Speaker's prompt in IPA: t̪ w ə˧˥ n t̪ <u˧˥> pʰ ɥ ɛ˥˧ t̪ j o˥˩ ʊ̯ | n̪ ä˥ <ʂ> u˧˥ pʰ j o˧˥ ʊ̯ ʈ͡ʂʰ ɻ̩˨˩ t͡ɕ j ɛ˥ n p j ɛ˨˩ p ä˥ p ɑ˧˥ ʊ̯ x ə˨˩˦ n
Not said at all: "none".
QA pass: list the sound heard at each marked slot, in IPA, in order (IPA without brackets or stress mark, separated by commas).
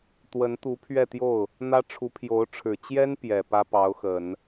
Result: u˧˥, ʈ͡ʂʰ